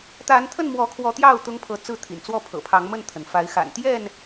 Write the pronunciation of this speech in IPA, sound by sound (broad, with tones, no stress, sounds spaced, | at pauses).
t̪ a˨˦ n t̪ʰ ə˥˨ n m w ɔ˨˦ kʰ w ɔ˨˦ t̪ j ɑ˥˨ ʊ̯ t̪ ʊ˦ ŋ pʰ ɤ˨˦ t͡s ɹ̩˥˨ t̪ʰ ḭ˨˩ n t͡s w ɔ˥˨ pʰ ɤ̰˨˩ pʰ ɑ˨˦ ŋ m ə˥˨ n t̪ʰ ə˩ n f a˨˦ ɪ̯ x a̰˨˩ n t̪ j ɛ˥˨ n